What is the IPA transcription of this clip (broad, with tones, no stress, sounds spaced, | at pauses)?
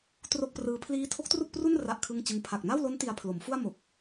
t r o˥˩ k̚ p r ɯː˦˥ pʰ l iː˦˥ tʰ o˦˥ k̚ t r u˥˩ k̚ p r u˥˩ n r a˥˩ ʔ kʰ ɯ˥˩ ŋ t͡ɕ ɯ˦˥ ŋ pʰ a˨˩ k̚ n a˥˩ w l o˦˥ n t i˧ a̯ pʰ l o˩˦ m f u˥˩ a̯ m o˨˩ k̚